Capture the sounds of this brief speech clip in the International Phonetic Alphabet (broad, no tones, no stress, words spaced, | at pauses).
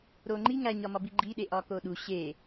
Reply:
ɾoŋ͡ǃi ŋæɲɒmɒ biɡ͡ǃiɗe ʔɒkoɗu ɕe